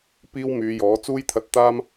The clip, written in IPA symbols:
piː˥wmyː˨˧jɔː˨˥ t͡suː˥jt̪ʰɐ˧t̚t̪aː˥m

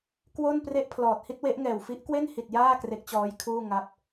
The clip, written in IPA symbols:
kwo˥˩npre˥˩ʔpʰlɔː˨˩t̚ hi˥˩t̚we˦˥ʔŋɛː˨˩w fi˦˥ʔkwe˥˩nhi˨˩t̚ jaː˥˩ kre˦˥k̚t͡ɕɔː˦˥jkʰuː˥˩ ŋa˦˥p̚

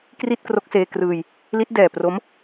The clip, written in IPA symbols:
kri˥˩t̚kro˦˥k̚seː˧ krɯː˧j | li˦˥t̚ dɛː˨˩ pro˦˥m

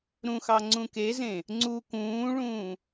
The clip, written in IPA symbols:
ɾũxɑ ŋ͡ǀũkezẽ | ŋ͡ǀu kũːɭũː

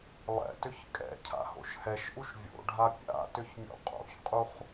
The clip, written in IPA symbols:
lˠɛ̰tʏç kʼɛ̰cʰa̰ho̰ʃ hɛʃʔuʃ vʲo̰ɖʱa pʲa̰tʏçmʲo̰ qʼo̰çqʼuχ

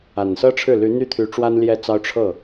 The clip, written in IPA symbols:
a˨˩nsɤ˥ʈ͡ʂʰɻ̩˥˩ ly˧˥n̪y˥˩t̪ʰy˧˥ ʈ͡ʂwa˥nljɛ˥˩t͡sɑ˥ʊ̯ ʈ͡ʂʰɤ˥˩

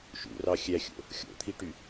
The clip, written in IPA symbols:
ʃṵrɑ xʲæxʲo̰ | xʲo̰t̪ʰiʈy

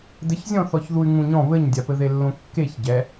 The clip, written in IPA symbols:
dɘçzʲɔ̃ θɔçðuy̯ŋũɲɔ̃ βɘɲdʲapɘ ðelːõkːeç ɟɛ

